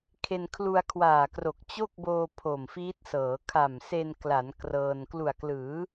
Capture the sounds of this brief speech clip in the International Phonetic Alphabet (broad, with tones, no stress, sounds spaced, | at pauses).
kʰ e˧ n kʰ l u˧ a̯ kʰ w aː˨˩ k r o˨˩ k̚ t͡ɕ o˥˩ k̚ b oː˧ pʰ o˨˩ m f iː˦˥ t̚ s ɤː˩˦ kʰ a˨˩ m s e˧ n k l a˩˦ n k r ɤː˧ n k l u˨˩ a̯ k l ɯː˩˦